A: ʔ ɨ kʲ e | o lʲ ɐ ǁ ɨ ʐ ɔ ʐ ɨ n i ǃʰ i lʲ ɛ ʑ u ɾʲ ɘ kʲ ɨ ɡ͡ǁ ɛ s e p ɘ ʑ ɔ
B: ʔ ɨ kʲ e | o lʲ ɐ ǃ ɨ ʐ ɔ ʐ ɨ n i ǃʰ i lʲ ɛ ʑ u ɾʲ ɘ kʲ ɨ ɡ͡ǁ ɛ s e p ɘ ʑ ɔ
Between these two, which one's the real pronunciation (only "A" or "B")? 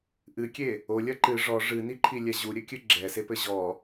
B